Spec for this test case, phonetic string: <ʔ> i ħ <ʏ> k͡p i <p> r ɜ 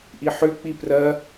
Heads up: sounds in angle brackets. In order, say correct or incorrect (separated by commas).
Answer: correct, correct, correct